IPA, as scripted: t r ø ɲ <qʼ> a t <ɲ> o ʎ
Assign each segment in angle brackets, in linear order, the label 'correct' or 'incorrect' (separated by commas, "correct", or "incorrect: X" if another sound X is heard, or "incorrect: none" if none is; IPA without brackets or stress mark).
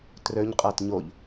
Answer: correct, correct